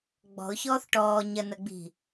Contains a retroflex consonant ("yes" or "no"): yes